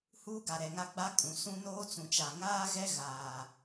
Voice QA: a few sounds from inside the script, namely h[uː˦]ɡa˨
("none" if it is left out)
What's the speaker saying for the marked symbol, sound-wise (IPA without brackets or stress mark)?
uː˦